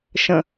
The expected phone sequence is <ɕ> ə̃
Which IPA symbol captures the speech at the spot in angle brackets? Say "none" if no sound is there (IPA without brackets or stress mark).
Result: ʃ